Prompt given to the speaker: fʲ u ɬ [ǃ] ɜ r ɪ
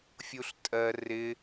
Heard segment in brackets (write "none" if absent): tʼ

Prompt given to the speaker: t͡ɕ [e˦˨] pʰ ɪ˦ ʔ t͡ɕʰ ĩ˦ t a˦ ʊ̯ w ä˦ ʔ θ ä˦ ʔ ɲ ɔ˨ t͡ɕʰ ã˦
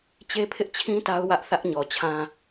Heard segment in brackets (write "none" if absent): e˦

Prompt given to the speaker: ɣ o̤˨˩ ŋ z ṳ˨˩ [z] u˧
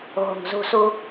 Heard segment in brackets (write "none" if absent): s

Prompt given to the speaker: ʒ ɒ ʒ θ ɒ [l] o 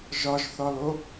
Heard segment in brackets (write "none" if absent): l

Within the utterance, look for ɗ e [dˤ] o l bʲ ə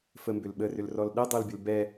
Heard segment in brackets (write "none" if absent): dˤ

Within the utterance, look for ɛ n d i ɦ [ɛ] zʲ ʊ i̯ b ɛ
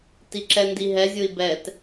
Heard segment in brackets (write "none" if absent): ɛ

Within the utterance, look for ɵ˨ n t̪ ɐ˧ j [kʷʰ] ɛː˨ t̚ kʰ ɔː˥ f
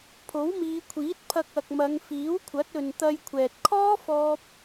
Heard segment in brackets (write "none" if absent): kʷʰ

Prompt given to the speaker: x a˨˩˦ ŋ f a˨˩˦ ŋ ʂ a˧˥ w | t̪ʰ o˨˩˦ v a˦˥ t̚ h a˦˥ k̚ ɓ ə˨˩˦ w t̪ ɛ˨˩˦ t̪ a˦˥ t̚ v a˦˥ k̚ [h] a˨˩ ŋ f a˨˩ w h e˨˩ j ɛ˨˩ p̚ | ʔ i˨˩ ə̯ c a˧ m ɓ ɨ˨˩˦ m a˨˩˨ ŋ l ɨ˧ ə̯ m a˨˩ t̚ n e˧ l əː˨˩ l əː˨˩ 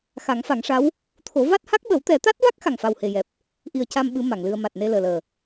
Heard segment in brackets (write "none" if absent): x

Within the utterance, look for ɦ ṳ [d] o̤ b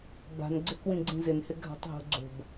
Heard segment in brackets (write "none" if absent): ɡ͡ǀ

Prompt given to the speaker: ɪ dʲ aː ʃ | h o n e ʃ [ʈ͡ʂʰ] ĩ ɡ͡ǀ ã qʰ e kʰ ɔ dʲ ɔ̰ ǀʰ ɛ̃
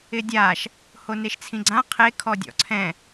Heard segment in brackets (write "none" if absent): t͡sʰ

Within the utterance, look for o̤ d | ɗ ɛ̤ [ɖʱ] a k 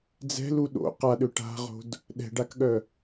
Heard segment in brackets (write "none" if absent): ɖ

